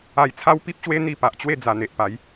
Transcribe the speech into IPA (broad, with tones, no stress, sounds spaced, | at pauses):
a˧ j t͡sʰ a˦ w p i˦ p̚ ɕ w e˦ n̪ i˧ p a˨ ʔ t͡ɕ w e˥˧ d͡z a˨˩ n̪ e˨ ʔ p a˨˦ j